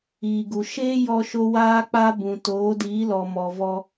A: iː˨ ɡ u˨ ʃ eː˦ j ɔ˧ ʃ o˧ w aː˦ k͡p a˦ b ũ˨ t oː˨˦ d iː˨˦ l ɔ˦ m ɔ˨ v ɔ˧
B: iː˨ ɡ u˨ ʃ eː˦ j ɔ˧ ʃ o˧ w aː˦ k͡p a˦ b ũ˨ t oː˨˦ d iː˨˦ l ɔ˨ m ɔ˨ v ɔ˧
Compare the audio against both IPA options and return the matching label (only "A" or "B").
B